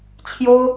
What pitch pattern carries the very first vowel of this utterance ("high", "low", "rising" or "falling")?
high